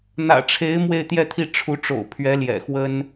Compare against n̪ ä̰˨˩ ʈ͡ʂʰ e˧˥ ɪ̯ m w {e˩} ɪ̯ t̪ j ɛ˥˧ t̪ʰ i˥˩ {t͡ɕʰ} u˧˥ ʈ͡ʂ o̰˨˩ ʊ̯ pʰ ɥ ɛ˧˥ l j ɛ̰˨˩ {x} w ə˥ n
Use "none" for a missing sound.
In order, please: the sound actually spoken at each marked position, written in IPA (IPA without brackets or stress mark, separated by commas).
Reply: e˥˧, ʈ͡ʂʰ, x